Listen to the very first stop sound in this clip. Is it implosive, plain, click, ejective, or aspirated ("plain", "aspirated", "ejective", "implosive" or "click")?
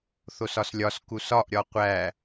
plain